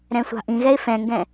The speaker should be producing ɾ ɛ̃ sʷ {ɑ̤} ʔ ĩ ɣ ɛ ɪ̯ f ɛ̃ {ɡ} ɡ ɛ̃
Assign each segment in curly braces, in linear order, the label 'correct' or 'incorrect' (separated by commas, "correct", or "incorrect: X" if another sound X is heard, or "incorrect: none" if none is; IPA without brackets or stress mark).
correct, incorrect: ŋ